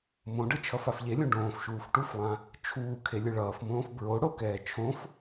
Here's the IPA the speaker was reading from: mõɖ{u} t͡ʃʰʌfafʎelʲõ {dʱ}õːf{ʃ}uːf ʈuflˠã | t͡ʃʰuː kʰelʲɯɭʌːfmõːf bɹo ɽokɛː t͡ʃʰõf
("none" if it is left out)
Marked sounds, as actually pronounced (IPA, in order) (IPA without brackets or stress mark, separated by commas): ɯ, ɖ, ʃ